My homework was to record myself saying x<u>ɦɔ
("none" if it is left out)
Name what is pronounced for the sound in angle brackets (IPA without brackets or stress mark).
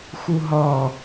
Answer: u